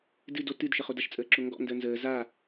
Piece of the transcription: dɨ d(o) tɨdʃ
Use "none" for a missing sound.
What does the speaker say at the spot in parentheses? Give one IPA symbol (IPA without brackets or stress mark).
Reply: o